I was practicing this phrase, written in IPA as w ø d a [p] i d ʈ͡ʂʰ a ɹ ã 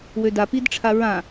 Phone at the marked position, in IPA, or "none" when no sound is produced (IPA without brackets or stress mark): p